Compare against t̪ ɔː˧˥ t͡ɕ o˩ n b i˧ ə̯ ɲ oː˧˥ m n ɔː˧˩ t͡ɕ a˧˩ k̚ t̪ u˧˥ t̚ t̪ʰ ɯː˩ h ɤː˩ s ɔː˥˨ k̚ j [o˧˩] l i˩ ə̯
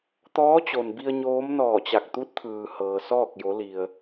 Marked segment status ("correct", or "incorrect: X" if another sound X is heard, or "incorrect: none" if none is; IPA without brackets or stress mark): incorrect: o˩˧